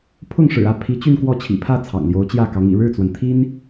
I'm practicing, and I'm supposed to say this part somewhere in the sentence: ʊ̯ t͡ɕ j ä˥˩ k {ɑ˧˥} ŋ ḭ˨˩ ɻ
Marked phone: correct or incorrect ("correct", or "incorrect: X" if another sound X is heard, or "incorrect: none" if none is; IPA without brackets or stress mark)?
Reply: correct